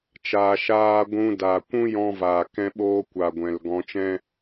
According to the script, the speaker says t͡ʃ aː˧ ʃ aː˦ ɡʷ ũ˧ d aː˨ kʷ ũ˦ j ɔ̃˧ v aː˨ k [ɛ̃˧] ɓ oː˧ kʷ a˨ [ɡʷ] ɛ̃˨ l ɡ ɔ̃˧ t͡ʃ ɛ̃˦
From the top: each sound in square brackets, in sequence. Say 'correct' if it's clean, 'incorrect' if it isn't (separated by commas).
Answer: correct, correct